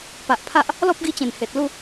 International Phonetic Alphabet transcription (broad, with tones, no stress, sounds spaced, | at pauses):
p a˨ ʔ pʰ a˦ ʔ | l ɔ˦ p̚ ɡ i˧ t͡ɕ ẽ˨˩ n h e˨ t̚ l u˥˧